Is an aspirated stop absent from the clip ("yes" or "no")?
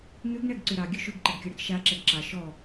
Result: yes